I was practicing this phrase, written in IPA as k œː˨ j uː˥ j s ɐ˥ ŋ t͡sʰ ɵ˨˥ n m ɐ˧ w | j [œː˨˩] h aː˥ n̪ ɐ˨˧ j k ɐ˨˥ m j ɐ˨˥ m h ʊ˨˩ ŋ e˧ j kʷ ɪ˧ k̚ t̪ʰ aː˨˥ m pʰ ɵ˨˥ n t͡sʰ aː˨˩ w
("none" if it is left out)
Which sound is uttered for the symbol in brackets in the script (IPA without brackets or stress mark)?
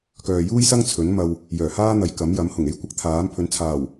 œː˨˩